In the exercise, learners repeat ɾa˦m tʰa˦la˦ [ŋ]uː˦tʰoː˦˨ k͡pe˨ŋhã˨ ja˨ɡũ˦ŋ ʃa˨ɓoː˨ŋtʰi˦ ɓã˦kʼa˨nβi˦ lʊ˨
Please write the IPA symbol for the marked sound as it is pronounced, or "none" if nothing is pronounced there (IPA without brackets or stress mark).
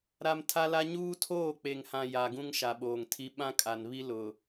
ɲ